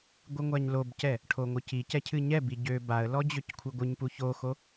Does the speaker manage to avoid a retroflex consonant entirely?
no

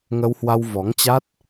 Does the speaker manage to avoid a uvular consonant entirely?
yes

